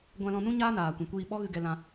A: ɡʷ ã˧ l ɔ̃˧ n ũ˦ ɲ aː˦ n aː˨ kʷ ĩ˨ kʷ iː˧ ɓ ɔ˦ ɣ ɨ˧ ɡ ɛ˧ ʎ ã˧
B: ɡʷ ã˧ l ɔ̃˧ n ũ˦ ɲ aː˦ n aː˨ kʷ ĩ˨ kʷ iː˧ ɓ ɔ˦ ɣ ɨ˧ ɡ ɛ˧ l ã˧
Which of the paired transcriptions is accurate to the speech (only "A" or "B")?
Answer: B